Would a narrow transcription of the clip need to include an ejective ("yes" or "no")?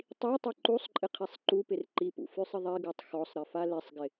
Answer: yes